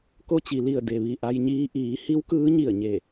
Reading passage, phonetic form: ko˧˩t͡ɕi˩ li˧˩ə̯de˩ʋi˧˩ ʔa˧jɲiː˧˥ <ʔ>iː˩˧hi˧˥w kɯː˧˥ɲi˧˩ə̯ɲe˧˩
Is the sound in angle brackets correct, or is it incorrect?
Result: correct